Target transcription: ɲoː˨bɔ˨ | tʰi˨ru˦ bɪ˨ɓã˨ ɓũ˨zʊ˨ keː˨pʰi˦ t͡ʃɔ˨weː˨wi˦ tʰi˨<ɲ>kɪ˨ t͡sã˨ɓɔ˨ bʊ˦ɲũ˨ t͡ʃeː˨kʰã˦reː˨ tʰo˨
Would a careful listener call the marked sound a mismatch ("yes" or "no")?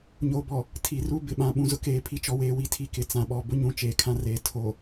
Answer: yes